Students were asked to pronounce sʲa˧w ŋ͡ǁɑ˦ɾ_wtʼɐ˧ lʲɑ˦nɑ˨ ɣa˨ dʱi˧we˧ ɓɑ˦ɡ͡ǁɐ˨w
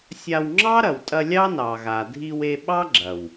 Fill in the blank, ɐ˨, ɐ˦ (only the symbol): ɐ˨